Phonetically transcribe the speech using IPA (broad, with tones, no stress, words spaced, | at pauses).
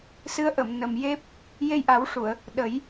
sɨ˧˥ə̯ʔə˨˩˨m nə˨˩mje˦˥p̚ | je˧jʔa˨˩˦wʂu˨˩˨ə̯ | ɗə˨˩˦j